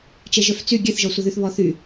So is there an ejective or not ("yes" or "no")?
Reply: no